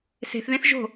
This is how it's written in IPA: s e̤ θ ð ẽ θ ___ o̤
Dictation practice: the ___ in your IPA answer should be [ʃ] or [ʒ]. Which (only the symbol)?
ʒ